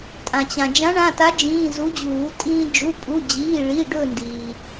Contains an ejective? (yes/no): yes